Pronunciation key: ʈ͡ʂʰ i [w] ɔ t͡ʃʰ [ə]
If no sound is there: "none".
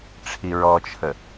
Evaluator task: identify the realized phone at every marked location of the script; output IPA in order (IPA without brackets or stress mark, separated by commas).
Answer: ɹ, ə